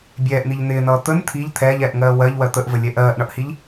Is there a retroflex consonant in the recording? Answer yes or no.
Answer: yes